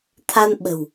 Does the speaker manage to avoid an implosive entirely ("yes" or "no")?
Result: no